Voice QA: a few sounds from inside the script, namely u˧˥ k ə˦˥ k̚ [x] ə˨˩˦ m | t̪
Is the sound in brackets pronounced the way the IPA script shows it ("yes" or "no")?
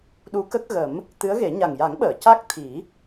no